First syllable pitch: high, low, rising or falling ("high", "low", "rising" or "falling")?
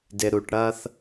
low